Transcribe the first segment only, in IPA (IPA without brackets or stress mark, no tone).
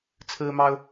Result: t͡sʰ